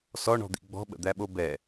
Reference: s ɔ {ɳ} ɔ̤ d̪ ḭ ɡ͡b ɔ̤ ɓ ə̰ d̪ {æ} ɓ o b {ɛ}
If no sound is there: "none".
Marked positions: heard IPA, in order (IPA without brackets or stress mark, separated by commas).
ɳ, æ, ɛ